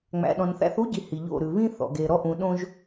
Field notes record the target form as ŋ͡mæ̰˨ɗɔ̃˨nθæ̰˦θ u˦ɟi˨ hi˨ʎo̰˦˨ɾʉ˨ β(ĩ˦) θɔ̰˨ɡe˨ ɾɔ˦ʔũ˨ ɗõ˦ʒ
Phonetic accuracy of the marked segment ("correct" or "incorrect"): correct